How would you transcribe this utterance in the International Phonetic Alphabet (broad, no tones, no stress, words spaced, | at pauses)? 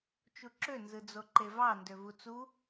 t͡ʃuǁø nzɯd͡zoǃevɑ ndøvut͡su